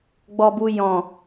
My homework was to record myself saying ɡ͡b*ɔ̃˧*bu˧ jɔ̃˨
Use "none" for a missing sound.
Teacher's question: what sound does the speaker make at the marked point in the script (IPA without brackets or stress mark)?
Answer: ɔ˧